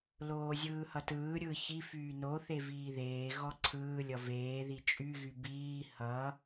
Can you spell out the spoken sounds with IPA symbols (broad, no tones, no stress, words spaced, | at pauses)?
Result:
loːzʲɯːhʌtɯː ɾʲɯ çi fyːnoθe viːðeː ɣɔǀʰɯː lʲʌveː ðit͡ʃʼyɣy biː hʌ